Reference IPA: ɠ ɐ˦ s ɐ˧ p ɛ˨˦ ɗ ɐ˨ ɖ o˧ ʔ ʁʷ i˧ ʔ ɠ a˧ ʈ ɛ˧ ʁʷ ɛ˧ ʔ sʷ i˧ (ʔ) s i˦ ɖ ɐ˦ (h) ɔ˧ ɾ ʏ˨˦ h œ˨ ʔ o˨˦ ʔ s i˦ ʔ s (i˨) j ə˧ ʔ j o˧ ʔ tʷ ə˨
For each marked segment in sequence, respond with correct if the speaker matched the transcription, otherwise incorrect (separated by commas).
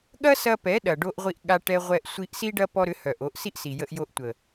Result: correct, incorrect, correct